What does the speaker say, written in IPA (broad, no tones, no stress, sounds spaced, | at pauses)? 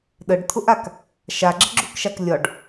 ɗ ə ɖ t̪ʰ ʊ ʔ a k | ʃ a ɡ͡ǁ ə ɡ͡ǁ u k ʃ a k lʲ ɒ ɖ